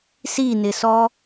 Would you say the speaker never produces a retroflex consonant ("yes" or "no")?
yes